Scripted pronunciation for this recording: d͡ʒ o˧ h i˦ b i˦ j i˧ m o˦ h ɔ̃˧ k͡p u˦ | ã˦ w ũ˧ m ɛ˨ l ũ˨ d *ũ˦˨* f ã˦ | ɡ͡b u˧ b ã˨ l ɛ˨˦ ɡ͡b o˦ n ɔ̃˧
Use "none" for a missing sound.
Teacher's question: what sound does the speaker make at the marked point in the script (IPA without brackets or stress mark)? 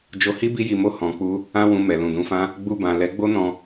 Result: ũ˨˦